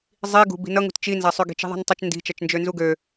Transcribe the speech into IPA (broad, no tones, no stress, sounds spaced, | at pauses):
zˤ i ɡ ṳ b i̤ n ʌ ŋ ṳ t t͡ʃ i n z a sˤ ʉ ɡ i̤ t͡ʃ i̤ ðˤ i̤ n tˤ ʌ t͡ʃ n d i̤ t͡ʃ ʌ t͡ʃ n d͡ʒ ø n z u ɡ ø